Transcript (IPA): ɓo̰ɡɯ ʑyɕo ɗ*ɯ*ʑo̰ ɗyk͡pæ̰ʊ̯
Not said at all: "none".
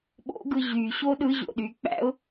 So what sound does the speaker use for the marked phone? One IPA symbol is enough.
ɯ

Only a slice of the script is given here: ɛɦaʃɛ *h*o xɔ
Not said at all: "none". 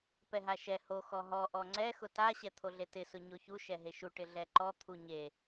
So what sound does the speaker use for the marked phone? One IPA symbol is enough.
h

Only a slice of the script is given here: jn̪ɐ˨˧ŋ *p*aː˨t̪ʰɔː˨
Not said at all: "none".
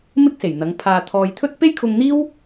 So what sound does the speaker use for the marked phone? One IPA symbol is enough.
pʰ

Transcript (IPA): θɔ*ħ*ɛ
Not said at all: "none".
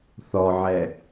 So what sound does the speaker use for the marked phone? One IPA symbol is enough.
ʕ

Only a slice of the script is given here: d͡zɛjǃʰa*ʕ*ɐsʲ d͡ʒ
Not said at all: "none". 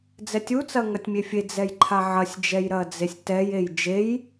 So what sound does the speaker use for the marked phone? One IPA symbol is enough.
ʕ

